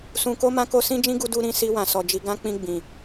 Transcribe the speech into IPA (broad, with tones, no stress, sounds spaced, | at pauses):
s ũ˧ k o˦ m ã˦ k o˦ s ĩ˦ d͡ʒ ĩ˦ ɡ u˧ d u˦ ɾ ĩ˧ s i˧ w ã˨ s ɔ˧ d͡ʒ i˦ ɡ ã˦ k͡p ĩ˧ ɡ͡b ĩ˨